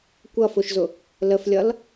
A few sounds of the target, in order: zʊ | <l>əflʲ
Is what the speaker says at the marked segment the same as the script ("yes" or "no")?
yes